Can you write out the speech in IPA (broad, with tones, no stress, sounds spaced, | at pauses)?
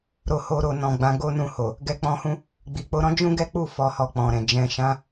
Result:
ɾ o˧ h o˧ ɾ o˨ n ɔ̃˨ ɡ͡b ã˨˦ ɡ o˦ n ũ˦˨ h o˨ | ɡ ɛ˧ k͡p ɔ̃˧ h ũ˦ | ɡ͡b i˨ k͡p o˨˦ ɾ ɔ̃˦ d͡ʒ ũ˦ ɡ ɛ˦ k͡p u˦˨ f ɔ˧ h ɔ˧ k͡p ɔ̃˨ ɾ ɛ̃˨ d͡ʒ ɛ̃˨ ʃ ã˨˦